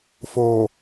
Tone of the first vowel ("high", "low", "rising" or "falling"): low